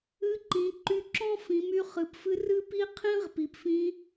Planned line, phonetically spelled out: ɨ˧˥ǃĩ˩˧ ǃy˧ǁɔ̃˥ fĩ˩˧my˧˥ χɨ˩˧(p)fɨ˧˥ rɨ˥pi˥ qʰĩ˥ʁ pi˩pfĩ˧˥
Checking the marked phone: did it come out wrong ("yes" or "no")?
no